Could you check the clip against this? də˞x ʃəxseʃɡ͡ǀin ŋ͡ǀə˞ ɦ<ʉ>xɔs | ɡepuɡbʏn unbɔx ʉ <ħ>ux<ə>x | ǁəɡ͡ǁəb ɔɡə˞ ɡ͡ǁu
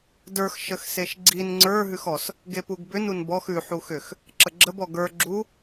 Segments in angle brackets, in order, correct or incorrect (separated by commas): correct, correct, incorrect